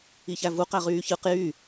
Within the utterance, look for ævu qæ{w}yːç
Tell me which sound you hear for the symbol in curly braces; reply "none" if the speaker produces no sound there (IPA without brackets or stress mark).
ʁ